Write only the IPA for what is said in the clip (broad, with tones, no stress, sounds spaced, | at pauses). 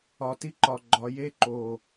ɒ˨ t i˦ ǃ ɒ˨ ɡ͡ǃ ɒ˨ j e˦ ǃ o˨